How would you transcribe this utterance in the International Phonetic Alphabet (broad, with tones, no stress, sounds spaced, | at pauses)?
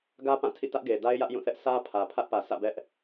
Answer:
ɡ ä˦ p ã˦˨ tʰ ḭ˦˨ t ä˦ ʔ ɡ e˨ d a˦ ɪ̯ j ä˦ ʔ j ũ˦˨ θ ɛ˦ ʔ s ä˦ pʰ ä˨ pʰ ä˦ ʔ p ä˨ sʰ ä̰˦˨ b ɛ˦ ʔ